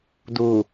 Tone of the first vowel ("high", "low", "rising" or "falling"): low